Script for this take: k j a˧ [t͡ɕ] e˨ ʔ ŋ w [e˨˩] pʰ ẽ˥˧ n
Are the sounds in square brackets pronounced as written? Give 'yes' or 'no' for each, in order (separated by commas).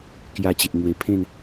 yes, yes